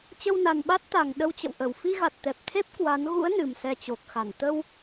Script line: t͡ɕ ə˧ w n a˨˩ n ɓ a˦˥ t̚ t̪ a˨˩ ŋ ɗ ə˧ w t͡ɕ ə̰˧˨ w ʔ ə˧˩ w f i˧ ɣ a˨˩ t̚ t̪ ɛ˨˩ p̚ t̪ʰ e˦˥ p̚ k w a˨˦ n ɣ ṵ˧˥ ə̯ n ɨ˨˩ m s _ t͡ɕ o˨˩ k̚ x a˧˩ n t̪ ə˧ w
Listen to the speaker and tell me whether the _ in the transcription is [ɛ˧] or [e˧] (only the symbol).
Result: ɛ˧